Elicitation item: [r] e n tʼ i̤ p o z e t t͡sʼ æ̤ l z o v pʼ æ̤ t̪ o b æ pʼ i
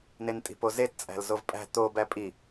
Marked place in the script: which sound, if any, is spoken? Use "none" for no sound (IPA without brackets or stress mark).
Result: n